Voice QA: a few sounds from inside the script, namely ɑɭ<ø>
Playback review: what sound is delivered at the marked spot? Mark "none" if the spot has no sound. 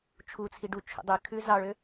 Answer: ø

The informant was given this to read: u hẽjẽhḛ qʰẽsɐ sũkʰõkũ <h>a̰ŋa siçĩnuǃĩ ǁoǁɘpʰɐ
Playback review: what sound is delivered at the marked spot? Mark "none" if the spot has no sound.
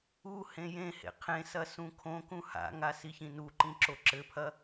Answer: h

